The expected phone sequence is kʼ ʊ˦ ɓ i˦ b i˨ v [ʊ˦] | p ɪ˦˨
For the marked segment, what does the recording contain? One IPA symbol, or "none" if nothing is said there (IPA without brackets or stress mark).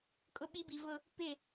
ʊ˦